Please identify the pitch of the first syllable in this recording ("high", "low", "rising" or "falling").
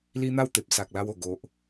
high